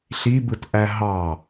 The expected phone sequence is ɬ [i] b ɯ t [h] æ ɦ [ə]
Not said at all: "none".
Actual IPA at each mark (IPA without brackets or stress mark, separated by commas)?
i, ʔ, ɑ